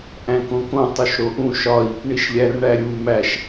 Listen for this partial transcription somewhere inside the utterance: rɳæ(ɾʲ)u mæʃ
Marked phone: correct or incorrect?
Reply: correct